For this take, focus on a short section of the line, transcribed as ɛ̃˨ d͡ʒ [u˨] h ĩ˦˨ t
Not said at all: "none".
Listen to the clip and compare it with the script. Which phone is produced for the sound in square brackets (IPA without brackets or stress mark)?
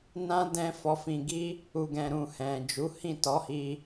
u˨˦